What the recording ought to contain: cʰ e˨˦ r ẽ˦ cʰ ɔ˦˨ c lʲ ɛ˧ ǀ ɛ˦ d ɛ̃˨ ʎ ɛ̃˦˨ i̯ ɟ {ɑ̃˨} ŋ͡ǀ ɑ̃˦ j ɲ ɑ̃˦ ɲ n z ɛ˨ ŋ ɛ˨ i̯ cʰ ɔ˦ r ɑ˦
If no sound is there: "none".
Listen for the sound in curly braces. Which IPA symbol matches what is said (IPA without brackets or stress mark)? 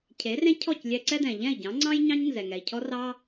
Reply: ɑ̃˨˦